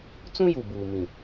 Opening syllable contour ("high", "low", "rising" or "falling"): high